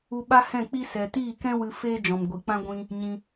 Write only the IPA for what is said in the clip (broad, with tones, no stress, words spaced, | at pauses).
u˧ɓa˦hɛ̃˦˨k͡pi˦ sɛ˨tiː˦˨ kɛ̃˦ wɨ˧ feː˦d͡ʒɔ̃˨m ɡʷi˨k͡pã˦ ɡʷĩ˦ | ɲĩ˧